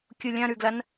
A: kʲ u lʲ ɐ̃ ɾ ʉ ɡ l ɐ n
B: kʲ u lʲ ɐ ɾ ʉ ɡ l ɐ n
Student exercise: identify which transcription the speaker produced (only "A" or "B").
A